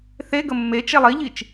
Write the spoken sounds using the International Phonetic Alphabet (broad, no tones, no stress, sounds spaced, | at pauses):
θ e ɡ ə mː e t͡ʃ e lˠ i ʎ i t͡ʃ